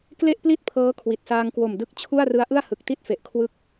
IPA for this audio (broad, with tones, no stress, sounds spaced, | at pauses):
k l e˥˩ ʔ p l i˥˩ t̚ pʰ ɤː˦˥ kʰ w i˨˩ t̚ s aː˧ ŋ k w o˨˩ m d ɯ˦˥ k̚ t͡ɕʰ u˥˩ a̯ r ɯ˦˥ a̯ ʔ ɯ˥˩ a̯ h ɯ˨˩ k̚ t i˥˩ t̚ f e˨˩ ʔ kʰ w ɯ˦˥ k̚